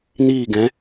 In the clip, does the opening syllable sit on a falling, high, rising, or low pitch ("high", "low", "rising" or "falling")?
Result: falling